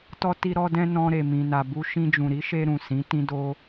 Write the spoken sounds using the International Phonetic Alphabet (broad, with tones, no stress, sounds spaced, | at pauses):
t ɔ˧ t i˧ ɾ ɔ˧ d ɛ̃˧ n ɔ̃˧ ɾ e˨ m ĩ˨ n a˨ b u˧ ʃ ĩ˧ d͡ʒ ũ˨ ɾ i˨˦ ʃ e˧ ɾ ũ˨ s ĩ˨˦ t ĩ˦ d o˦